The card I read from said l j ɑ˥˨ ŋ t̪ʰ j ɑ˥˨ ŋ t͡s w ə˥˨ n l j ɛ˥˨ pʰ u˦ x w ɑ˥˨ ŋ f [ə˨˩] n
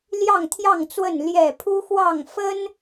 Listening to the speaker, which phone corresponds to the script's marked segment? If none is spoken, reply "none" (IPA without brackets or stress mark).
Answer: ə˦